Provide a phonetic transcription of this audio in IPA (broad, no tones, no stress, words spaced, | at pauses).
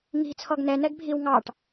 ŋi̤ t͡sʰɔɡnɛ nɛɡbʱiw ŋɑʈ